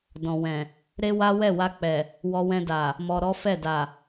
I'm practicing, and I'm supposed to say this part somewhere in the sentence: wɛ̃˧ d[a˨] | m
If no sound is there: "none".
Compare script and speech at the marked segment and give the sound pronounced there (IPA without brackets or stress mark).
a˨